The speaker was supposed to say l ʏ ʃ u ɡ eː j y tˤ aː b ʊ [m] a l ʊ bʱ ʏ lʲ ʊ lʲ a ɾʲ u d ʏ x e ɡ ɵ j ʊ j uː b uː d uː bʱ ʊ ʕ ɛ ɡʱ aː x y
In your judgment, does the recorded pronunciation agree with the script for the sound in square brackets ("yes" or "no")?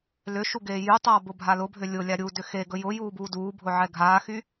no